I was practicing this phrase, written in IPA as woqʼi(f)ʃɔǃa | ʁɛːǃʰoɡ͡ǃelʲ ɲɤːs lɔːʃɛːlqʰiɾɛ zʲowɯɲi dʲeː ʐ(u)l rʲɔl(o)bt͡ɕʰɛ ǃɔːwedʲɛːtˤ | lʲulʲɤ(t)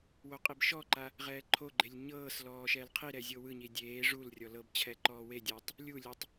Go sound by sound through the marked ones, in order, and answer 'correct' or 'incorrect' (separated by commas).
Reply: incorrect, correct, incorrect, incorrect